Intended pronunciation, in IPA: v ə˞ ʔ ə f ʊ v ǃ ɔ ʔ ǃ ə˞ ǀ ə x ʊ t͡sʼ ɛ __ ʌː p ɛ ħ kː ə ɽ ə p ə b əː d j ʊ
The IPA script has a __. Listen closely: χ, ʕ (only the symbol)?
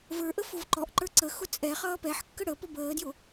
χ